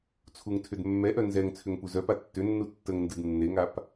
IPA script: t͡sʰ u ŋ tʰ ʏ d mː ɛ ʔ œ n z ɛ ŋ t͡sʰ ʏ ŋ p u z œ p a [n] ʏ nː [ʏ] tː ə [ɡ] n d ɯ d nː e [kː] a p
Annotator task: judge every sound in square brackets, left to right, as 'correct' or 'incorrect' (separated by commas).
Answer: incorrect, incorrect, incorrect, incorrect